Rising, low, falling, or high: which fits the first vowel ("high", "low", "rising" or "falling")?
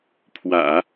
low